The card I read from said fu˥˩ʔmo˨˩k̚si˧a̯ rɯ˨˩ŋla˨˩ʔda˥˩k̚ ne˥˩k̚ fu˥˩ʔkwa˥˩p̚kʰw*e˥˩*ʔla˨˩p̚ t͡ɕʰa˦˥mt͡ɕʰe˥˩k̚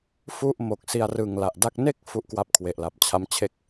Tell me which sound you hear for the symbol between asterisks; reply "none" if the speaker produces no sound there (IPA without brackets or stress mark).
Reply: e˨˩